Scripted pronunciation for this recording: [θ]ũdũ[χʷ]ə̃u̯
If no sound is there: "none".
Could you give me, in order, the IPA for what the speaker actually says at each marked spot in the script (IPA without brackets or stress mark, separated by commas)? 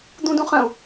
d̪, χ